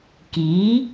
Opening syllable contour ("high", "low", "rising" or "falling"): rising